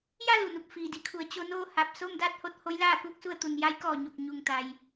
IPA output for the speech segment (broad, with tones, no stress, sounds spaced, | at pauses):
j a˥˨ l u˧˩ n u˧˩ p̚ f iː˧˩ d i˧˥ kʰ u˩˧ ə̯ t͡ɕ o˧ n oː˥˨ h a˧˩ p̚ s o˥˨ m d aː˥˨ t̚ h o˧ t̚ h o˧˥ j l aː˥˨ k uː˥˨ k̚ s u˥˨ ə̯ t̪ u˩ n j a˧˥ j k ɔː˧˩ ɲ o˧˩ k̚ ɲ u˧˩ ŋ t̪ a˩ j